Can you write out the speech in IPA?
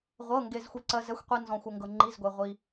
ʁʷ ɤ˩˧˩ ŋ ɡ e˩ z xʷ i˩ ǀ ɜ˩ z ɛ˩˧˩ xʷ qʷ i˩ n z ɔ̃˩ xʷ ɤ˩ ŋ ɡ ɤ˩ ŋ͡ǃ i˩˧˩ z ɡʷ e˩ ʁʷ i˩

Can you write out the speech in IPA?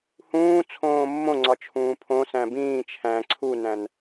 h ũː t͡sʰ õː mː õ ŋ͡ǀ ɒ t͡ʃʰ ũː pʰ õ s æ̃ b ĩː t͡ʃʰ æ̃ ǀʰ u n æ̃ n

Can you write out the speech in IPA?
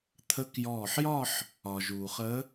t̪ʰ ə˨˦ k j ɔː˧˩ ħ j ɒ˥˧ ħ | ɒ˩ ʒ uː˩ χ ə˨˦

